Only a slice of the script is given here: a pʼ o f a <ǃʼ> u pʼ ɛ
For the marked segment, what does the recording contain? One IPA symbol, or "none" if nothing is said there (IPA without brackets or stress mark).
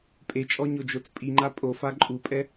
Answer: ǃʼ